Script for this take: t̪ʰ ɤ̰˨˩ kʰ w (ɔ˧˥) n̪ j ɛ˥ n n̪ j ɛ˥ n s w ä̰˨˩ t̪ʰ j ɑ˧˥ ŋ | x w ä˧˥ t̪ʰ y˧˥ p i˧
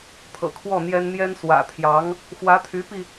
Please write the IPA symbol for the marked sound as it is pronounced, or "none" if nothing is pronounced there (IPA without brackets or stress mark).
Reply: ɔ˥˩